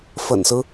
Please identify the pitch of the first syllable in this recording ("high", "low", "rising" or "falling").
low